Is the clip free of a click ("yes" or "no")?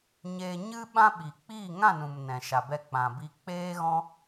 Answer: yes